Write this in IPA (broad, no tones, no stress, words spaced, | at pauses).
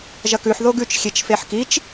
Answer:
ʒɐkʉħ ðoɡʉt͡ʃ xʲet͡ʃfeħkit͡ʃ